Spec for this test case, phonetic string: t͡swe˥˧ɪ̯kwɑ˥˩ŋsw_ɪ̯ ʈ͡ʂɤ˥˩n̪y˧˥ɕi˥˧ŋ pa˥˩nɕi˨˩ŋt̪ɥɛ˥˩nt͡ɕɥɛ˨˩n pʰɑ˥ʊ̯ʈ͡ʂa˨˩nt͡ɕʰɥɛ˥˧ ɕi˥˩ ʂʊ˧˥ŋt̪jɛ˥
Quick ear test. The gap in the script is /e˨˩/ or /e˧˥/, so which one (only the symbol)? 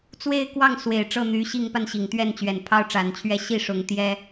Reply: e˨˩